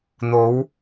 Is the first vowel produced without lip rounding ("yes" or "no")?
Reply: no